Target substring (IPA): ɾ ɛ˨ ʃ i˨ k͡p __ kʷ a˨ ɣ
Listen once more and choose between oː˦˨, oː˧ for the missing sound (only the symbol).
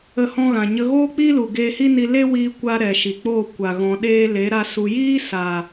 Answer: oː˦˨